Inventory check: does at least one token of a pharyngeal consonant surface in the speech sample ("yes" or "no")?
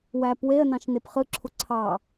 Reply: no